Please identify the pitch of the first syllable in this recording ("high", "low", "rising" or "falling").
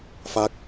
falling